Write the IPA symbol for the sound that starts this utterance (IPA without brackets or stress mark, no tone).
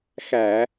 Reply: x